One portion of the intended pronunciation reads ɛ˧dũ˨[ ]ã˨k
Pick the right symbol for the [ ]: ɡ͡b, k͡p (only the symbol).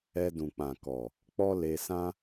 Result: k͡p